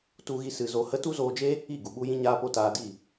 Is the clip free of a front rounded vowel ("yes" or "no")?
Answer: yes